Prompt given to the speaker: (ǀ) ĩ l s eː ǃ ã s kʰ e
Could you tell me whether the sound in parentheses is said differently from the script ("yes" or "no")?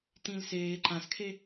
yes